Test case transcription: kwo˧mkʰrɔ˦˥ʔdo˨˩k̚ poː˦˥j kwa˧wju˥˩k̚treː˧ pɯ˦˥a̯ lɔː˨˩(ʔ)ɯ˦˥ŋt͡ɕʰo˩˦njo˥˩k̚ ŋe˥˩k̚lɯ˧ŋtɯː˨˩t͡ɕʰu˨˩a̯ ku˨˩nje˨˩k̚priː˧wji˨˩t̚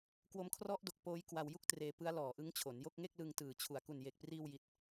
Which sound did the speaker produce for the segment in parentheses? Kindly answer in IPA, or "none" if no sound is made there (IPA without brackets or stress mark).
ʔ